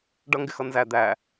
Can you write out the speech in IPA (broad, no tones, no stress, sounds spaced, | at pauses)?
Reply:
ɖ ʌ ŋ ɡ ɪ x ʌ n z æ d̪ æ